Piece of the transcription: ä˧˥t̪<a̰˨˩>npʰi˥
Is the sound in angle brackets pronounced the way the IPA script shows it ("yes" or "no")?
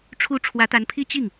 no